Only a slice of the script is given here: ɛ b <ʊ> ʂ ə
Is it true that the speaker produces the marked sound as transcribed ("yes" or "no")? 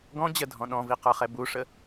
no